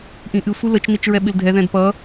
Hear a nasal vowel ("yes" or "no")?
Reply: yes